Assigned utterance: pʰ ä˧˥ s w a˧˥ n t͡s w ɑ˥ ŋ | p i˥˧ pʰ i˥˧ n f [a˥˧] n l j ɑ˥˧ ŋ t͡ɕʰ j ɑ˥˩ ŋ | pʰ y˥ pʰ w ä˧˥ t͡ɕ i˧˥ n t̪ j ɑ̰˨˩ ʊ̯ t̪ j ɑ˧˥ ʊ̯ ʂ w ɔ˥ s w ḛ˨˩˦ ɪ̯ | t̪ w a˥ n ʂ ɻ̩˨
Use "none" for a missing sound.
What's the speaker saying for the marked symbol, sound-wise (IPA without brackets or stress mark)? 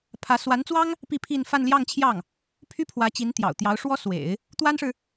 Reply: a˥˧